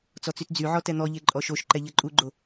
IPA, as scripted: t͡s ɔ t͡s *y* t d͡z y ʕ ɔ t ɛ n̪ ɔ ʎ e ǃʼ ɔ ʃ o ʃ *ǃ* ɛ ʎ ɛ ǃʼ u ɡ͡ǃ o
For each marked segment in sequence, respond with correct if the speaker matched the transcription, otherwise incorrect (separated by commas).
correct, correct